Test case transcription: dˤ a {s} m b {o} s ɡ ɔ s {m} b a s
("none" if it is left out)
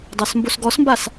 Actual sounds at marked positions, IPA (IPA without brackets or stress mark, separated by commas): s, o, m